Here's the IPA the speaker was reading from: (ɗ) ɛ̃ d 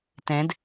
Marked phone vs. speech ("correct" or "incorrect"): incorrect